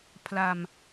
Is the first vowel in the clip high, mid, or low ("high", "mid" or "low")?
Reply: low